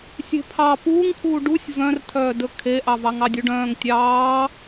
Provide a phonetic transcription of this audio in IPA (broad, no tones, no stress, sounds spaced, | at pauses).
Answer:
sʲ e̤ pʰ ɑ p uː ŋ kʰ uː ɖ u sʲ v œ̃ r tʰ œː d ɵ kʰ e ʔ ɑ v ɑ ŋ ɑ dʲ u ɖ œ̃ː ŋ tʲ ɑː